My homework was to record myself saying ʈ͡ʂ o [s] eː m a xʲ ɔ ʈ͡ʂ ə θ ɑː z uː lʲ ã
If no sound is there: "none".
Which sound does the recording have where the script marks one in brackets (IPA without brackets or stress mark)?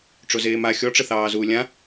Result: z